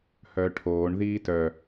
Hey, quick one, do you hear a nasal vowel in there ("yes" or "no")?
no